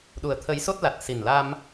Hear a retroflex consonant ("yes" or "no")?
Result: no